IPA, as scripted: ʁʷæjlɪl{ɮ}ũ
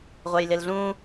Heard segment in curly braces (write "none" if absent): ɮ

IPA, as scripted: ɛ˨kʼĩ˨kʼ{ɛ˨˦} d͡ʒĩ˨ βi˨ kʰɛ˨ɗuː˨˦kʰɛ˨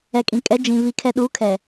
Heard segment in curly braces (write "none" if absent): ɛ˨˦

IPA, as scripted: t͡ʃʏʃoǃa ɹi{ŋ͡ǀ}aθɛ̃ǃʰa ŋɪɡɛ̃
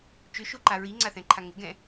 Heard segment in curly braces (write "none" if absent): ŋ͡ǀ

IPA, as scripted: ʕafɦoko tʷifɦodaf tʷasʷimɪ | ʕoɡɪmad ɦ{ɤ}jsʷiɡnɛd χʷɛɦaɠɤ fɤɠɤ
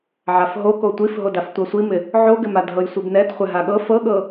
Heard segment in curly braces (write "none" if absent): ɤ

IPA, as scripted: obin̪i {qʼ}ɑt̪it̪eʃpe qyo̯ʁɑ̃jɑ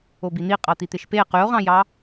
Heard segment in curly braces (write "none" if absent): qʼ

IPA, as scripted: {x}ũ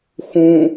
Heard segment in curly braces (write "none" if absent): x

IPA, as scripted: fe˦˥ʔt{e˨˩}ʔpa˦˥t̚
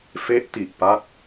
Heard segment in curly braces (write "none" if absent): i˨˩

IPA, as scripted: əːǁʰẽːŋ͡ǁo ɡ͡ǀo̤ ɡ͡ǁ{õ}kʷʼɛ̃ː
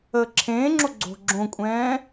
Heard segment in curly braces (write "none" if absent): õ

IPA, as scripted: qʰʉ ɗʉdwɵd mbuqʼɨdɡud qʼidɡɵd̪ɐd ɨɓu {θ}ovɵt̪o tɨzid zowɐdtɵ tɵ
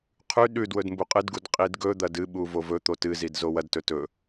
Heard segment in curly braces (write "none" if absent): v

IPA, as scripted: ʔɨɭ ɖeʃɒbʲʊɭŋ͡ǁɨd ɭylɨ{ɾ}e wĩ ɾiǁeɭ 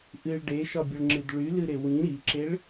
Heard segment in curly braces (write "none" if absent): ɾ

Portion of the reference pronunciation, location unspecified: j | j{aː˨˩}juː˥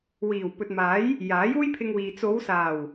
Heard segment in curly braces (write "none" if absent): aː˨˥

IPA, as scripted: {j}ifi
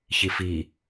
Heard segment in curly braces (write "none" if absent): ç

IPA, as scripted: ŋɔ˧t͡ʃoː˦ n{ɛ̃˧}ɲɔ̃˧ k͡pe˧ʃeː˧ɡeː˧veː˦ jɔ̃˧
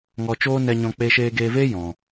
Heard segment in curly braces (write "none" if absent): ɛ˧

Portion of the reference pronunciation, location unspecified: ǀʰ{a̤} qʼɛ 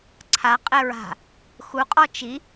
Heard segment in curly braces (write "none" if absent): a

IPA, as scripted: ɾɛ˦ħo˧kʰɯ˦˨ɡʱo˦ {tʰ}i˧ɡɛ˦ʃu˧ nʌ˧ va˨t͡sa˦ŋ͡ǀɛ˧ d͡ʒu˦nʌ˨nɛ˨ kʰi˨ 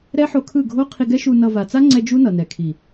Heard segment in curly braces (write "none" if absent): qʰ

